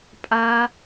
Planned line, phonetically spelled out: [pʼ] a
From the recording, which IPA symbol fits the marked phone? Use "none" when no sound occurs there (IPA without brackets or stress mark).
pʼ